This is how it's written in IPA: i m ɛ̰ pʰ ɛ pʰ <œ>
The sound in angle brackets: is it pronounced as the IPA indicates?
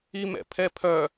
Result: yes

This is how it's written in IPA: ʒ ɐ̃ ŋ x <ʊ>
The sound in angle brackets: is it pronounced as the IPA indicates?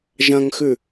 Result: no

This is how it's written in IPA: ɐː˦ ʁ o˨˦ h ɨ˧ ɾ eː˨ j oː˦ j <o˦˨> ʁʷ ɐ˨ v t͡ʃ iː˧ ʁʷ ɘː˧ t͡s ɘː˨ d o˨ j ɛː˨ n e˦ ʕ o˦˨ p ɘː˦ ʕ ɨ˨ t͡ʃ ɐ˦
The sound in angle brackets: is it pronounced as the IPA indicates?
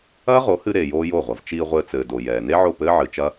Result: yes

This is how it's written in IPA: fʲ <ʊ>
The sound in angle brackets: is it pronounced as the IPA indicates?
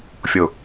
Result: yes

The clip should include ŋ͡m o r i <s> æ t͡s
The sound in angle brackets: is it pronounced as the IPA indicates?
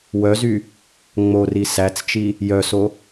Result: yes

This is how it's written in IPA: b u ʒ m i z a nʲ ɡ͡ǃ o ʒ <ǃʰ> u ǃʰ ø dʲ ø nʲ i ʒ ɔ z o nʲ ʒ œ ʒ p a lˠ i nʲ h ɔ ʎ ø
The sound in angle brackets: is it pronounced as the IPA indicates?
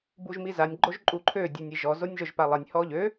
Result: no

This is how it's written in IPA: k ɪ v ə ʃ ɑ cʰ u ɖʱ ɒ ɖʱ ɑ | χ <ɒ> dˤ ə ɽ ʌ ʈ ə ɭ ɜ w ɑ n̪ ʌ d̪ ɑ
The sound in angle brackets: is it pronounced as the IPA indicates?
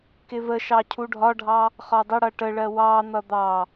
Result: yes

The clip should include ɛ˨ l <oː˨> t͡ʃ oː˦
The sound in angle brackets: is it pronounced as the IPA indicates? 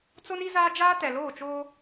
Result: no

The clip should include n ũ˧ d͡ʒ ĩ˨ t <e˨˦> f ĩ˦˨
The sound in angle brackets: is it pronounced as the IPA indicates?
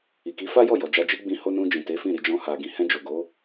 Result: yes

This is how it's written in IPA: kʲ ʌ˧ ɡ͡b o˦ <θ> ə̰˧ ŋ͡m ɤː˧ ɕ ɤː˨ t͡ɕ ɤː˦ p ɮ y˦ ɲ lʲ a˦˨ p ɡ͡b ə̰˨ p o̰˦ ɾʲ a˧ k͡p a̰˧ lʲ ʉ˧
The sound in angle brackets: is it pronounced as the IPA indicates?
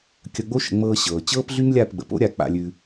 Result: no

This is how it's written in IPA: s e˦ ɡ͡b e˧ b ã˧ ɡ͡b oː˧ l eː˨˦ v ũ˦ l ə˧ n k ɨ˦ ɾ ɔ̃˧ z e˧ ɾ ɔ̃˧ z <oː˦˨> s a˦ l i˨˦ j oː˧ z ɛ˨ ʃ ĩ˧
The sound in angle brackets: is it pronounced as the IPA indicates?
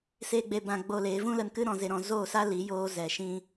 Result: yes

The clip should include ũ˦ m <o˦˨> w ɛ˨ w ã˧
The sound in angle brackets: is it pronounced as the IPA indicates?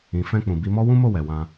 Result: yes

